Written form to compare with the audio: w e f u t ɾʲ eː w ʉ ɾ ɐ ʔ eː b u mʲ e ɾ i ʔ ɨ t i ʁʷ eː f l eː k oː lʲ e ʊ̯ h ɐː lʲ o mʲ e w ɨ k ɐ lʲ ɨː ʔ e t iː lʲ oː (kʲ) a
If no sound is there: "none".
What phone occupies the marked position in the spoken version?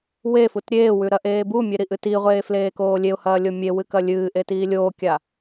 kʲ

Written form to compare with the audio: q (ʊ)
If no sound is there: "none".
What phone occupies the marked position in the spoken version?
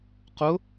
ʊ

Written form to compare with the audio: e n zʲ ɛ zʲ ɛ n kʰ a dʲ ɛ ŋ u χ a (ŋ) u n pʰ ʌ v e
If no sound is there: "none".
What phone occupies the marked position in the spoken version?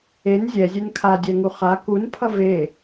k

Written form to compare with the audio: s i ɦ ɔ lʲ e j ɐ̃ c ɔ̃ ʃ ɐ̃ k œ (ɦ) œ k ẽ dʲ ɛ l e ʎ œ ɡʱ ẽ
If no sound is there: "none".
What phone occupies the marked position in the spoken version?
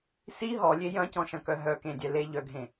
ɦ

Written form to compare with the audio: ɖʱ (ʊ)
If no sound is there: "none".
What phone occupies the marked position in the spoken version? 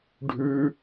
ʉ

